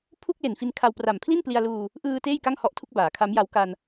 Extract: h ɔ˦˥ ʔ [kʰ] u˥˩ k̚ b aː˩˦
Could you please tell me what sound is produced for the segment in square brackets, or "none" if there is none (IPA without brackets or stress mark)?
tʰ